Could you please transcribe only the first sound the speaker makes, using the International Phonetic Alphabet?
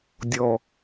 dʲ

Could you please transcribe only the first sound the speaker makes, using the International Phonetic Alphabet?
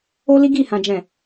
o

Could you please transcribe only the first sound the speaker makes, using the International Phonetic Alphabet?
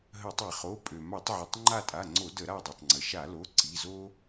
ɦ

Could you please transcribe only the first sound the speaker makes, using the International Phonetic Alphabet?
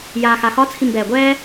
j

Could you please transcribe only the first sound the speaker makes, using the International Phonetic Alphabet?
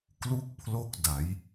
k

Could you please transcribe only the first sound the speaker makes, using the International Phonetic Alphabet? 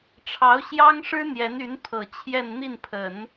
ʈ͡ʂʰ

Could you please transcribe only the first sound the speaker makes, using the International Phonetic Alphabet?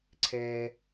ǀʰ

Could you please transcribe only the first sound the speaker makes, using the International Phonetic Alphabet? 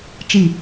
t͡ʃ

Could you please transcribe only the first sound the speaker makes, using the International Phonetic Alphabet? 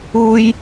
u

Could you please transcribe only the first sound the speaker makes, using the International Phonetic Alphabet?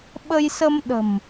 ɓ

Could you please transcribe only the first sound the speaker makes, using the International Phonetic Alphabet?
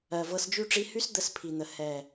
ɜ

